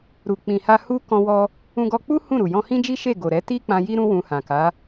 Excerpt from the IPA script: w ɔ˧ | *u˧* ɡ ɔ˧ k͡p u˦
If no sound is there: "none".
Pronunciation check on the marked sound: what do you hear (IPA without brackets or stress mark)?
ũ˧